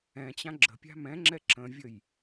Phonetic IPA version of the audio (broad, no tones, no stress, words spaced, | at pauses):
ɛ̃t͡ɕã ɡ͡ǁə̤pʲa̤ mɛ̃ŋ͡ǁɛ ǁə̃vʲəj